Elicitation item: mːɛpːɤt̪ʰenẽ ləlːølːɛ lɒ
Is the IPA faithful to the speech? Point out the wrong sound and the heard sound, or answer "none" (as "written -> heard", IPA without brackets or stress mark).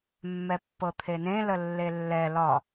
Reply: ø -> e